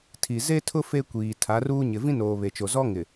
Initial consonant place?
alveolar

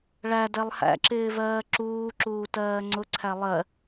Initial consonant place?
retroflex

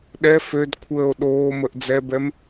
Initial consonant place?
alveolar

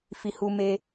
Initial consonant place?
labial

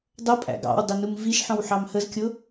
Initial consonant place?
alveolar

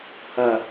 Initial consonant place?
glottal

